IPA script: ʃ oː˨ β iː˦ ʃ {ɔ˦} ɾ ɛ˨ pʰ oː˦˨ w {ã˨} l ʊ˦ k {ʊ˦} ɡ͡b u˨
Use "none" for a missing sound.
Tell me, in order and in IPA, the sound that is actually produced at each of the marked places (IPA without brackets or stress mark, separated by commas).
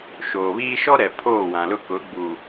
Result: ɔ˦, ã˨, ʊ˨˦